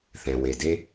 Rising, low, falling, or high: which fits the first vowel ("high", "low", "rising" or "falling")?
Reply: low